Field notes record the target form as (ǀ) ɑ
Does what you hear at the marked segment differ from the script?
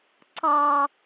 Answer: no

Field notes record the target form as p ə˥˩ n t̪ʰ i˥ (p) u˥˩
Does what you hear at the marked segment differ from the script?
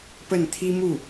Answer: yes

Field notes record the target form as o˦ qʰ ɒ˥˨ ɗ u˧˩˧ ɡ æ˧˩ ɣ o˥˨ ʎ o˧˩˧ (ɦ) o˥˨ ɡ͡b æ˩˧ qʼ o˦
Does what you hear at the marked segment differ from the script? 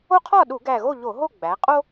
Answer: no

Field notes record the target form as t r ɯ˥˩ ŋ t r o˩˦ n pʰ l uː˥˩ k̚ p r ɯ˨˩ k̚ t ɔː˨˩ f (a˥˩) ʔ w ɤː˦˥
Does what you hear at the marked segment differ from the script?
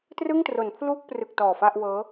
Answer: no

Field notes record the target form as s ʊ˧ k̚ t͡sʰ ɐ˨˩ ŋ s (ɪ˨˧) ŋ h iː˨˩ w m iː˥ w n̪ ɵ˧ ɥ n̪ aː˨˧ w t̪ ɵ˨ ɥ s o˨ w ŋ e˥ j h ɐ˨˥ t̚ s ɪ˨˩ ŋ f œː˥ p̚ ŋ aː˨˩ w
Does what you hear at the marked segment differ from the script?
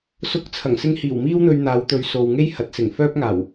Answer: yes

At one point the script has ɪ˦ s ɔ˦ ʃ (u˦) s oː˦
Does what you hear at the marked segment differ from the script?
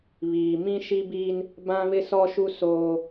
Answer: no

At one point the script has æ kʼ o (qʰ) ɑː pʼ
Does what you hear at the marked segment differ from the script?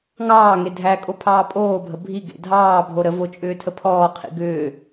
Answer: yes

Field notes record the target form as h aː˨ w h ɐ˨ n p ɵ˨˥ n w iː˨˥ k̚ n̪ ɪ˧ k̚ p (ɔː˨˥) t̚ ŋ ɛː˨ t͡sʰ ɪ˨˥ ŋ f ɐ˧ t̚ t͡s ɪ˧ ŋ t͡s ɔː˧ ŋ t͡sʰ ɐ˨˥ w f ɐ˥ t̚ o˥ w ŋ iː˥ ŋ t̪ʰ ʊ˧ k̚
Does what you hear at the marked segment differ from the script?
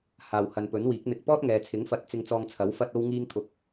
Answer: yes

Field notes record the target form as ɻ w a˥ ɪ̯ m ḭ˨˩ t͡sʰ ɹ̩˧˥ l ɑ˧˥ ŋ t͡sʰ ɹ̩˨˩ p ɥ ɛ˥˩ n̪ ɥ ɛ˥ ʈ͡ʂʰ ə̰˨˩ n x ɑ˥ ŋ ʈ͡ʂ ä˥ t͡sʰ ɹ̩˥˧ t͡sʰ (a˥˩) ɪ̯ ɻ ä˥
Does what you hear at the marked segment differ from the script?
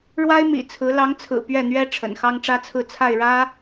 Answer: no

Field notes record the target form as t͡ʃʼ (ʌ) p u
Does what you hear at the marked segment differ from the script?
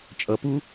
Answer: no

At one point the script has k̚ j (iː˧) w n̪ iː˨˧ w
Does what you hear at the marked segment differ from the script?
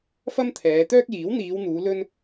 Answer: yes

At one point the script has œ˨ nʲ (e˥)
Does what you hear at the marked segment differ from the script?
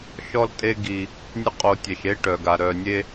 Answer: no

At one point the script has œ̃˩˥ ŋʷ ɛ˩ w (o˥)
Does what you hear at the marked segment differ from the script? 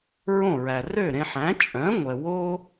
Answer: no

